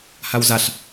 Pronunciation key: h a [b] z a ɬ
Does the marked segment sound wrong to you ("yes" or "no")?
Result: yes